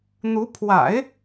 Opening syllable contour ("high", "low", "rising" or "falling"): rising